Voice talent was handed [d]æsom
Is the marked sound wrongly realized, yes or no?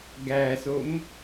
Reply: yes